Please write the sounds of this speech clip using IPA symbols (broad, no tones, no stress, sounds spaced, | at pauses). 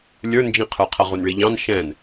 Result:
lʲ ə˞ n d͡ʒ ĩ qʰ ə˞ qʰ ʌ ʁ u n ɭ i ʎ ɑ̃ n ʃ ɛ̃ n